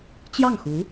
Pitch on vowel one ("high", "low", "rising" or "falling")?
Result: falling